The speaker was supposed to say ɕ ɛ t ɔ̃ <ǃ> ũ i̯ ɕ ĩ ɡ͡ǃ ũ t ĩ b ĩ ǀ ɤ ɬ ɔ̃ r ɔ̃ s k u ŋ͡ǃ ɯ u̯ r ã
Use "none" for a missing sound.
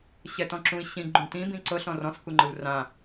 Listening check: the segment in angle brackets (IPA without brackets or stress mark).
ǁ